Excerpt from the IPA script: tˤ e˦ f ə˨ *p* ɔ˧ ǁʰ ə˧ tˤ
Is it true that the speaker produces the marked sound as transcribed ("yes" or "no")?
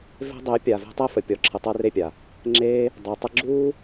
no